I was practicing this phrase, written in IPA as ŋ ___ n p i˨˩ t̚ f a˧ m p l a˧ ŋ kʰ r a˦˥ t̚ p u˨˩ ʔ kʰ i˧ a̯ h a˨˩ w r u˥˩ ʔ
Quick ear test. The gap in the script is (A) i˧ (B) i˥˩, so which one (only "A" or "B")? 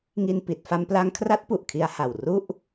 A